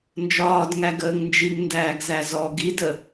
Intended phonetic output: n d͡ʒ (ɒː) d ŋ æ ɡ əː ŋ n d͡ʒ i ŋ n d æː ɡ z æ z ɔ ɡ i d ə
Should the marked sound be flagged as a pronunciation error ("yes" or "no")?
no